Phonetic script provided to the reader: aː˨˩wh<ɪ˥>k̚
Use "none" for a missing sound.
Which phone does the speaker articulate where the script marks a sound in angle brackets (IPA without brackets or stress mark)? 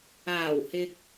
ɪ˨